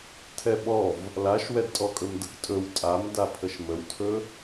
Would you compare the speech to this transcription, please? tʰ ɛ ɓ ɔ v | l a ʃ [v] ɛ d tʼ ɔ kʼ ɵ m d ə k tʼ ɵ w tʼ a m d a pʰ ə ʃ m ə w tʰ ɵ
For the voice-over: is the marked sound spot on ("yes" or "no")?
no